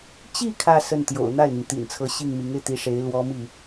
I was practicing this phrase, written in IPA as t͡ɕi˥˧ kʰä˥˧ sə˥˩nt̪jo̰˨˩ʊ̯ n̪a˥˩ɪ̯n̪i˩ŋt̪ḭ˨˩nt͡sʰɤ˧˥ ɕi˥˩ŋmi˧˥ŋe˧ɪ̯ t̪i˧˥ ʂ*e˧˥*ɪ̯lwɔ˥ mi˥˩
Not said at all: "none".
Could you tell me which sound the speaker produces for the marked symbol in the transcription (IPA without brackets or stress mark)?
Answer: e˧˥